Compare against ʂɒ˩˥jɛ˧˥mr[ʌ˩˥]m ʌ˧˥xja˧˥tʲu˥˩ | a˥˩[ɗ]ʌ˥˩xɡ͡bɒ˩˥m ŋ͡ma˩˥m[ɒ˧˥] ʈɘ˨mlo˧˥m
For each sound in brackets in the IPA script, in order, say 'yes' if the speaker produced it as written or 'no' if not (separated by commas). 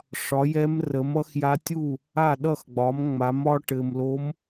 no, yes, yes